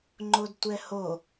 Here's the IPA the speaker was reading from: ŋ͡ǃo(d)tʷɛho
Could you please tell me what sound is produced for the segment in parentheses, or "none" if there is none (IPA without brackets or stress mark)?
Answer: d